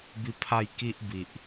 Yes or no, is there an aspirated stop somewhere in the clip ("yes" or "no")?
yes